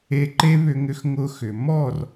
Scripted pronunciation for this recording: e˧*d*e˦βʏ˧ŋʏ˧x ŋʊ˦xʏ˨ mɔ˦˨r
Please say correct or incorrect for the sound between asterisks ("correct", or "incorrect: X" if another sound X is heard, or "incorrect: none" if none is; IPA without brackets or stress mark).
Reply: incorrect: ǃ